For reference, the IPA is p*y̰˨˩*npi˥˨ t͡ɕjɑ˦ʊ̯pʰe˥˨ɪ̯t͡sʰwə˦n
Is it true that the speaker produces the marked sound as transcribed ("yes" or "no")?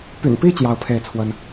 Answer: yes